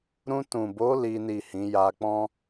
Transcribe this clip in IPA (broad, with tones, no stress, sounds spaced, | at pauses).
ɾ ũ˧ t ũ˨ b o˨˦ l i˦ n i˦˨ h ĩ˨˦ j a˧ k͡p ɔ̃˦